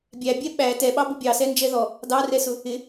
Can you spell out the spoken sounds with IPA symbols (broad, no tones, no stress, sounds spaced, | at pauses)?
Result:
bʲ æ bʲ ɛ ɓ æ t ɛ ɓ ɑ b ʊ bʲ ɑ s ɛ n d͡ʒ ɛ ð ɔ | d ɑ r ɛ s ʊ | ɪ